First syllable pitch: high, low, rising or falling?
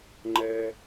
high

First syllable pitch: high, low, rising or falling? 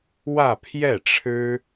falling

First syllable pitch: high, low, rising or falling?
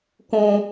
high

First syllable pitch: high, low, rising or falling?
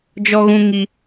high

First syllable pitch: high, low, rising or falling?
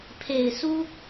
low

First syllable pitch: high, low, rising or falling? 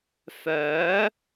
rising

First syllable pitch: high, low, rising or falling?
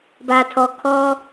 low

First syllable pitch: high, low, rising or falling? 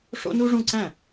high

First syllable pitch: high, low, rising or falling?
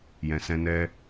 low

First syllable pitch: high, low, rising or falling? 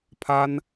high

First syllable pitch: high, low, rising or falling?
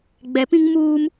rising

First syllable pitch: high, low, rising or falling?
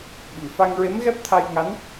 low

